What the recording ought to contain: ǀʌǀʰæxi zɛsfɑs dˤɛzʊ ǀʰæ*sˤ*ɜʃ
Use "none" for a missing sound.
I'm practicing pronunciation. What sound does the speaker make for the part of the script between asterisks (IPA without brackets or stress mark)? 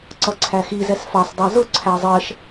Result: zˤ